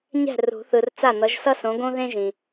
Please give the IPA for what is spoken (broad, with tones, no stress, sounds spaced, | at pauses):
ɲ ɛ̤˥˩ r ṳ˨˩˦ θ ɯ˨ r t͡s a˥˩ n̪ ʌ˨˥ ʒ s ʌ˥ s õ˨˥ ɡ õ˥ ð ẽ˥ ʒ ĩ˨